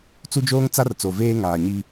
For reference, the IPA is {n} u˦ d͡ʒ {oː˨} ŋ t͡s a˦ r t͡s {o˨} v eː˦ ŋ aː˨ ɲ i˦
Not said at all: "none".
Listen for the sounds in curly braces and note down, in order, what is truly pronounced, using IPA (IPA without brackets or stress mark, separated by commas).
t͡s, oː˦, o˨